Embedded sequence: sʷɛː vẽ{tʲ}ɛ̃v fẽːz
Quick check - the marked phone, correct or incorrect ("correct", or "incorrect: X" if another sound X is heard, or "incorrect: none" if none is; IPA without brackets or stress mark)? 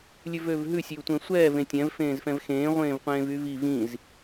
correct